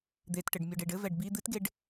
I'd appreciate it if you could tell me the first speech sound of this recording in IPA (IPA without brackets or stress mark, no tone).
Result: d̪